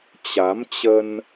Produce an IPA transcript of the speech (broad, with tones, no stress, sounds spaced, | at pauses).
t͡ɕ a˨˦ m t͡ɕ ə˧ n